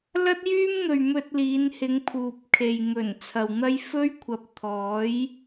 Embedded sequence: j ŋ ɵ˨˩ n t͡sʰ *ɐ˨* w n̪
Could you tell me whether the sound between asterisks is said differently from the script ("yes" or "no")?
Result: no